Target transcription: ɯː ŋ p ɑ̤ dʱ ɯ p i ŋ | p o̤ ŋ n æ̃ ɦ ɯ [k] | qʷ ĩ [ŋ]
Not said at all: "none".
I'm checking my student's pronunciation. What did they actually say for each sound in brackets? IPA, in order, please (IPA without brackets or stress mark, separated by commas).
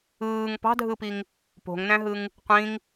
ŋ, ŋ